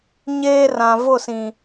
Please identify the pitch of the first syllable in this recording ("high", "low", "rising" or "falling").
high